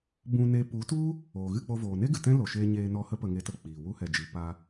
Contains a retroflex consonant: no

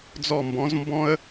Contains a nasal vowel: yes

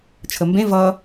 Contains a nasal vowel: yes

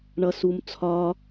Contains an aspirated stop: yes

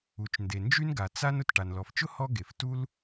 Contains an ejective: no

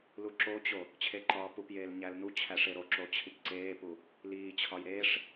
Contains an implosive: no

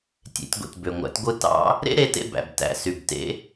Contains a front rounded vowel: yes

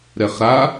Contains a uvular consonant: yes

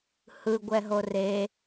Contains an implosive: no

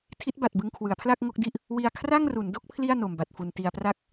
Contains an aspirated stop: yes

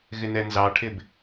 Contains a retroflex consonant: yes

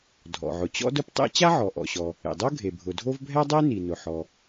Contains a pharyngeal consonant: yes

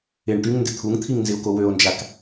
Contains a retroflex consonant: yes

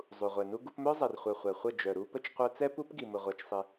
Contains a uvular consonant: yes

